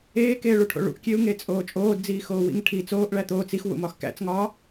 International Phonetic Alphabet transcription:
eː k eː ɭ u ʈʰ o̰ ɭ ṵ ʔ kʲ e u̯ ŋ e t͡sʼ oː t͡ʃʼ oː d d͡z iː x oː w ḭ ŋ ʈʰ i t͡s oː ʔ ɭ æ t̪ oː t͡s i x w ṵ m ɒ x k æ̰ t͡s ŋ ɒː

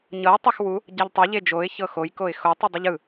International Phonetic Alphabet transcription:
ɲ ɤ ə̯ tˤ ɛ x w u | ɟ a ʎ tˤ e ʎ e d͡ʒ o ɪ̯ ç ɤ x o j k o ɪ̯ x o tˤ ɯ dˤ ɯ ʎ ɯ

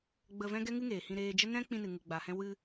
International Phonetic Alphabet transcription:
ɡ͡b ə˧ v ɛ̃˦ ɡ ɛ˦ ŋ ɨ˦ ŋ eː˨ h ĩ˧ ɾ eː˧ d͡ʒ ə˦ n ɛ̃˦ k͡p ĩ˧ n ɨ˨ ŋ ɨ˨ ɡ͡b a˨ h ɛ̃˧ w ɨ˧

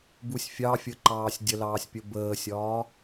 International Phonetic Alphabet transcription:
b u sʲ fʲ ɑ fʲ ə ǃ ɑː sʲ dʲ ə l ɑː sʲ pʲ ə b əː sʲ ɒː

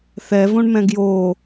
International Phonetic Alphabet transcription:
θ ɛ v õ ɳ m ɛ̃ ɡ j o

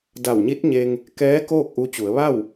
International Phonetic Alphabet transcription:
d a˧˩ w ɲ i˧˥ t̚ ɲ e˧ ŋ | k ɛː˧˥ k oː˥˨ k̚ ʔ u˧ t͡ɕ u˩˧ ə̯ ʋ a˥˨ w

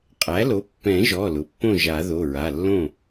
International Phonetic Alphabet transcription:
qʼ æ˩˥ l o˩˥ pː ɛ̃˨˩˦ ʒ ɔ˩˧˩ l ʊ˩˧˩ pː õ˥˩ ʒ a˨˩˦ ð o˩˧˩ ɹ a˩˧˩ lː õ˥˩

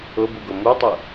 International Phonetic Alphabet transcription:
ʊ b u ɡ o m u tˤ ʊ

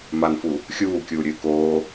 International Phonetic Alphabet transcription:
m a n f u | xʲ uː kʲ uː ɾʲ ɨː k oː

